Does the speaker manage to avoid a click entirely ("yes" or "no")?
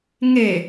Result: yes